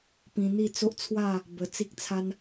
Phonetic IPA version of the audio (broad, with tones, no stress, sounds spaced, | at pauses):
p ĩ˧ n̪ i˥˧ t͡s o˦ ʔ t͡sʰ w a˥˧ | b ə˧ t͡s i˦ k̚ t͡sʰ a˦ n